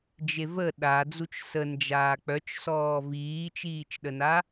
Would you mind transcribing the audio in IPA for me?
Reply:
d͡ʒ e v ə ɗ a d͡z u t͡ʃ s ə n d͡ʒ aː k͡p œ t͡ʃ s ɔː v iː t͡ʃ iː t͡ʃ ɗ ə n a

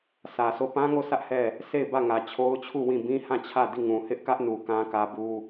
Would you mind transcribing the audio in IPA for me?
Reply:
s ä˨ sʰ o˦˨ p ã˦ ŋ o˦˨ sʰ ä˦ ʔ h ɛ˦˨ | sʰ e˦˨ ɪ̯ b ä˦˨ ŋ ä˨ t͡ɕʰ o˦ ʊ̯ t͡ɕʰ u˦˨ w ĩ˦˨ b ĩ˦ h ã˦˨ t͡ɕʰ ä˦˨ d i˦˨ ŋ ũ˨ h ɪ˦ ʔ k ä˦ ʔ n u˨ k ã˦ k ä˦ b u˦

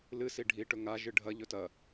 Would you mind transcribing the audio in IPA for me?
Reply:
l ɨ s i ɖʱ i ʈ ɵ ŋ a ʒ ɨ ɖʱ ɐ ʎ ɵ t ɐ

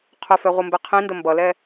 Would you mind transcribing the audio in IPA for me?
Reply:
qʰ œ f ɛ ʁʷ ɯ m b ɛ qʰ ĩ n d ə m b ʌ l ɛ

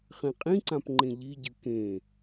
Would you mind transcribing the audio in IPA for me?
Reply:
χ ẽ qʼ ĩ ǀ ã p ŋ͡ǃ ẽ ʎ i ɟ ɨ k ẽ

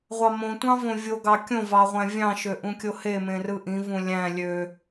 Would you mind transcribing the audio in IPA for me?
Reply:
ʁʷ ɑ m õ tʷ ɑ̃ v õ vʲ o ɡ ɑ kʲ õ v ɑ ʁʷ æ̃ vʲ ɑ̃ ʃ ø ʔ ũ kʲ o h e m ẽ r ɯ ʔ ĩ v ũ lʲ æ̃ lʲ ø

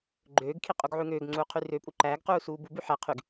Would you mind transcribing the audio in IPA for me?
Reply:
ɡ͡ǃ øː ɡ kʰ i qʼ u ɡ ʕ ʉ ŋ øː ɡ ŋ͡ǀ uː qʰ y r ø pʼ u ǃ æː ɡ q uː s uː b u b ʉ ħ ɛ qʰ y ɡ

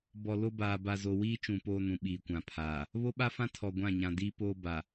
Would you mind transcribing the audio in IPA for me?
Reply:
b ɔ˨ l o˦ b aː˨ b a˨ z o˨ w iː˦ t͡ʃ ũ˨ p oː˦ n ũ˨ ɓ iː˨ kʷ ã˨ pʰ aː˨ | β o˦ ɓ a˦ f ã˦ tʰ ɔ˨ ɡʷ ã˦˨ ɲ ã˨ d iː˦ p oː˦ b a˨

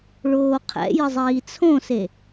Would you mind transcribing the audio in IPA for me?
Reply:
ɭ oː qʰ ɛ̰ j ə zˤ iː t͡sʰ õ s e

